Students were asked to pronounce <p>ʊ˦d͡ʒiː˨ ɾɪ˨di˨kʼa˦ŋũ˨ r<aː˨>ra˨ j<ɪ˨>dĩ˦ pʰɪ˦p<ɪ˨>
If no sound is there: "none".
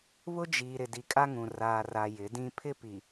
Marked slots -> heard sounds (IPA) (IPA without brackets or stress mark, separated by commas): β, aː˨, ɪ˨˦, i˨